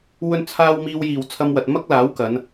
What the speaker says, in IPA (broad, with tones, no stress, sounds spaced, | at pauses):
w ɵ˧ n t͡sʰ aː˧ w m iː˧ w j iː˨ w t͡sʰ ɐ˧ m w ɐ˨ t̚ m ɐ˥ k̚ l aː˨˥ w k ɐ˨˧ n